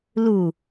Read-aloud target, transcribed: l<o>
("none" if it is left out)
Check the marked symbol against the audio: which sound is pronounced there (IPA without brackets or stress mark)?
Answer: u